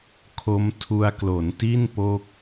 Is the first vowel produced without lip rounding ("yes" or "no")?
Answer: no